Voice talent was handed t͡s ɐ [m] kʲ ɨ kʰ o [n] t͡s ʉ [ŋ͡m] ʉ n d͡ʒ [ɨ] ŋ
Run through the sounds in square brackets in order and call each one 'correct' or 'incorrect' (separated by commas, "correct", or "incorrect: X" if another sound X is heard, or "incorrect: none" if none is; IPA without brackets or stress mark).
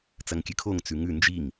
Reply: incorrect: ŋ, incorrect: ŋ, incorrect: ŋ, incorrect: i